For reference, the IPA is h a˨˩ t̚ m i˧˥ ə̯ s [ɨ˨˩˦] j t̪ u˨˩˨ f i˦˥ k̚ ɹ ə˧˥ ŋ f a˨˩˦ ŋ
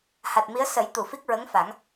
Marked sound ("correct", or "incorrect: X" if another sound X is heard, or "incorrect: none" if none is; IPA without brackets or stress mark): incorrect: ə˨˩˦